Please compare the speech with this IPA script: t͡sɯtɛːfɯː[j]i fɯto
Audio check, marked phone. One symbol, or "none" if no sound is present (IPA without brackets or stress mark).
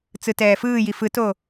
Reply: j